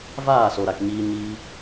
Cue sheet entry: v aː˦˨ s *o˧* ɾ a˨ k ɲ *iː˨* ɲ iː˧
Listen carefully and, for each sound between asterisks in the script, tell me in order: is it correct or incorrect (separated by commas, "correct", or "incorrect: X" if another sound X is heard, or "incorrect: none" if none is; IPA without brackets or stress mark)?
incorrect: o˨, incorrect: iː˧